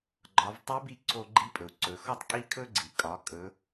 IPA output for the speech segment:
ɡ͡ǃɒ˩˧vtˤɵ˧˥bi˧ ǀʰo˧ɡ͡ǃi˧˥pʼɵ˩u̯ ǀɵ˩˧xɔ˥tˤkʼi˥kʰɵ˥ ɡ͡ǀi˩kʼɒ˩˧ kʼɵ˩˧

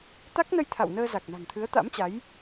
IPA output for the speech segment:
t̪a˦˥k̚nə˧j t̪ʰa̰˧˨wnəː˧ za˨˩k̚na̤˨˩ŋt̪ʰɨ˨˦ə̯ t̪a̰˧˥mt͡ɕa˨˦j

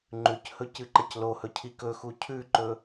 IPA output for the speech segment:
ŋ͡ǃʉchɵ cɨǃɐclohɵ cʰikɵxu cʰʉǃɵ

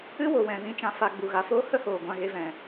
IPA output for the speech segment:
ɨ˦ wo˨wɛ̃˨ vĩ˨t͡ʃã˨ fa˨ ɡ͡bu˨ɣa˨foː˦ hə˦hoː˨ ɡʷã˧ ɣe˧vɛ̃˨

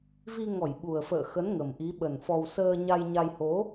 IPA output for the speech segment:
vi˧ŋɔ˧˩j ɓu˨˩ə̯fə̰ː˧˨xə˨˦n ŋə˨˩mʔi˨˦ ɓə˨˩nfɔ˧w səː˧ɲa˧jɲa˧j ho˨˦

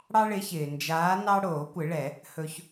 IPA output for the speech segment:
ɽɑ˦ɭɪ˨˦çɪː˩ nd͡ʒaː˨˦ nɑ˦ ɽoː˨˩˦kʷɪ˨˩˦ɭɛ˨˩˦ | hɵ˦ç

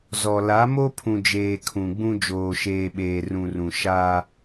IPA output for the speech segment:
zɔ˨ la˨˦mo˦pʰũ˨d͡ʒeː˨ kʰũ˨ɡ͡bũ˦ d͡ʒoː˨ʃeː˨ɓeː˨ rũ˨ rũ˨ ʃa˦

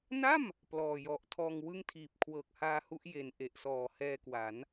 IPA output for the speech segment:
na˥˩m | plɔː˨˩jɔ˨˩ʔ tʰɔː˧ŋ wɯ˥˩ŋtʰiː˨˩p̚ kʰwɤː˨˩k̚haː˧hu˦˥ʔ je˨˩n ʔe˨˩ʔsɔː˨˩hɛː˧kwa˩˦n

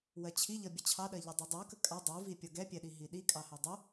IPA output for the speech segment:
wɜt͡ɕʰiʎʌ bʲət͡ɕʰɑɗɜ ʎɛdˤʌdˤu kəkʼɑ dˤuvi pʲʌɡɛpʲɛɗi ɦiɗikʼɑhɛ dˤʊ

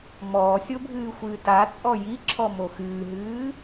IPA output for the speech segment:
mɔːsʲobʱɨːxʷɨː tat͡sʼɔ jiǁʰɔmo xɨːɦɨː

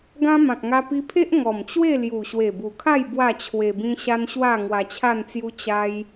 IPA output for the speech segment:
ɡã˦ mã˨k̚ŋa˧pi˧pʰe˦ʔ ŋɔ˨˩mt͡ɕwe˥˧lju˨˩ ɕwe˨˩bu˨˩kʰa˥˧j bwa˥˧t͡ɕʰwe˧bĩ˦ ɕa˦nɕwa˥˧ ŋwa˧t͡ɕʰa˥˧nt͡sju˦ t͡ɕa˦j

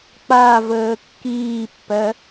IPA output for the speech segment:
k͡pa vəːkːiːpːɜ

